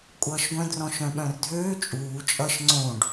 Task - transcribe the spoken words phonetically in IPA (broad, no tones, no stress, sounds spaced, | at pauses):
kʷʼ ʌː ʃ ɡʷ œ̃ d r ɔ̃ ʃ œ̃ ɓ œ̃ r dʱ øː t͡ʃʼ uː t͡ʃʼ ʌ ʃ ŋ͡ǀ õ ɖ